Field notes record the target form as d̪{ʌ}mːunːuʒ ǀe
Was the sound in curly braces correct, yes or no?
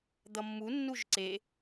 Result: yes